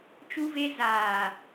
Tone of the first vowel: high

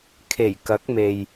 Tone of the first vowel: low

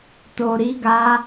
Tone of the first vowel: low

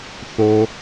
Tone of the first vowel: high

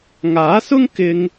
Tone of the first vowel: rising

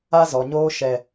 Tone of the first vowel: high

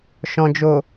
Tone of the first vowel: low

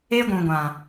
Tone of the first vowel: high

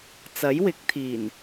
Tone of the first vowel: rising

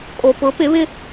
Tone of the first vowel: low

